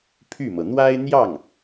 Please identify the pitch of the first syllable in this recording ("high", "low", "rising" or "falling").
falling